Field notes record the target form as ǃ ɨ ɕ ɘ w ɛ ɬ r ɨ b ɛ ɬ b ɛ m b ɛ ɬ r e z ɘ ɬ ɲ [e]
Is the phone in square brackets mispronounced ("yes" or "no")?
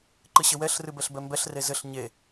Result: no